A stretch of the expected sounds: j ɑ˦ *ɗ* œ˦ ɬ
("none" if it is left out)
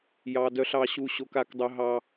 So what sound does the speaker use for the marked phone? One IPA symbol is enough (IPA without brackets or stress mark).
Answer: d